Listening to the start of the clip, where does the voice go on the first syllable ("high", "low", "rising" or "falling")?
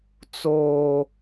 high